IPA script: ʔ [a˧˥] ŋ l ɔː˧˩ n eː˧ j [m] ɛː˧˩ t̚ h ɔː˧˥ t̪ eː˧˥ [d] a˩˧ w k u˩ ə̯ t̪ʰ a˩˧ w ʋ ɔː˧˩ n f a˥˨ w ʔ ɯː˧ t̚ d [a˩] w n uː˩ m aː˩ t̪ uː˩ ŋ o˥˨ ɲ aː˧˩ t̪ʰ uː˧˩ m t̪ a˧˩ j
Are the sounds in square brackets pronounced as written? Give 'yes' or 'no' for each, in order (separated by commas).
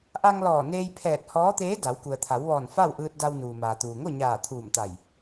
no, no, yes, no